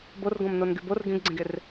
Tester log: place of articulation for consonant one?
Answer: labial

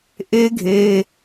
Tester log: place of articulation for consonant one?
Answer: glottal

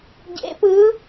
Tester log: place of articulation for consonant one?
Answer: palatal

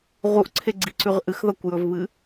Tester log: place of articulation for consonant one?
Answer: uvular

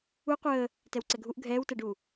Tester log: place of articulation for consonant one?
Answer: uvular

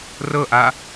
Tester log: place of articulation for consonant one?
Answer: alveolar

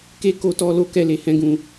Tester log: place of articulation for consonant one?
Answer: velar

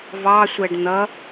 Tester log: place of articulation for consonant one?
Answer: labial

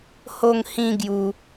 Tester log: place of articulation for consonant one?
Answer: glottal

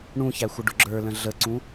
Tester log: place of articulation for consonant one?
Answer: retroflex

